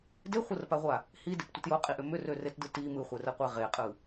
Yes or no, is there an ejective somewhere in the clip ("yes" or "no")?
yes